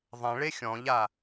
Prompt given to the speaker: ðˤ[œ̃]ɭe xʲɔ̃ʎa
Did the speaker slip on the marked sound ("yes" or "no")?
yes